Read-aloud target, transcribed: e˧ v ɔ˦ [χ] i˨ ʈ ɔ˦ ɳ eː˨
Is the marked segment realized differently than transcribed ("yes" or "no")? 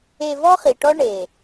no